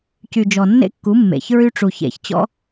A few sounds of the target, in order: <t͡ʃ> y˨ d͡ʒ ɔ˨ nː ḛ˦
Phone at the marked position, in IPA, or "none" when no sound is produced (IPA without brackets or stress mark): c